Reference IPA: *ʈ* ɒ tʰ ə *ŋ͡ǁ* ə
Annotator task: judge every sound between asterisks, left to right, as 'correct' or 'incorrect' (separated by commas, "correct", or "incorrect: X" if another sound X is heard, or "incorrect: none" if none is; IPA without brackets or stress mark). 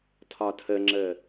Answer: incorrect: tʰ, correct